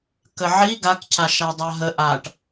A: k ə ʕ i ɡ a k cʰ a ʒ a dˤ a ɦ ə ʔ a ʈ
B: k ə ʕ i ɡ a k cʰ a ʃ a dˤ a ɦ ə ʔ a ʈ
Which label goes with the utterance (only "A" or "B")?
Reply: B